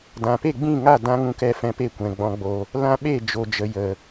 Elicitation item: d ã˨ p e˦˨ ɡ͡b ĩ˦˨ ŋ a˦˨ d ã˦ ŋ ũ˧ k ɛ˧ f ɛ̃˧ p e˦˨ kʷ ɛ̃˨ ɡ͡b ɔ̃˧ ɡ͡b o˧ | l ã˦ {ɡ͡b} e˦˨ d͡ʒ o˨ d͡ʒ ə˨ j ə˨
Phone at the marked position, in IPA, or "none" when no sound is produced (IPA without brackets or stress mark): ɓ